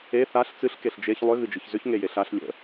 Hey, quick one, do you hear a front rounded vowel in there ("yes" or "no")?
yes